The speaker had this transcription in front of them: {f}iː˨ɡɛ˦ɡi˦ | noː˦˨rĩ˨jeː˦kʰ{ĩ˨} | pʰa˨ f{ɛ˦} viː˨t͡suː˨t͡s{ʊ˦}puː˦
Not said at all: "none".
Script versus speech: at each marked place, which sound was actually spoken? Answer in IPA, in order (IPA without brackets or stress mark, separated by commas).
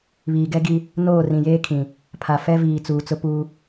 β, ĩ˨, ɛ˦, ʊ˦